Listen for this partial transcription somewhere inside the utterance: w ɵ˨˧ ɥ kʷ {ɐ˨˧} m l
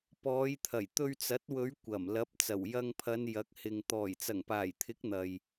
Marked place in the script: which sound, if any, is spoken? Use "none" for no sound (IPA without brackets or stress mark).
ɐ˨˩